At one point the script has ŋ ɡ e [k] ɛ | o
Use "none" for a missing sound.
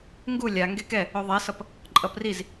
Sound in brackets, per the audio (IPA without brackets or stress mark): k